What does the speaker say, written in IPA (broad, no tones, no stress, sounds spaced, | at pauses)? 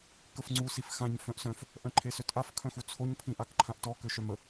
k ə f ŋ͡ǀ u s i f x ã ɲ f œ̃ ʔ s œ̃ f | ʔ œ̃ ǃʰ e s ø t ʔ a f kʰ œ̃ x u t͡sʰ o ɲ pʰ ĩ ʔ a k ǃʰ ã ʔ t ɔ k ø ʃ œ m ə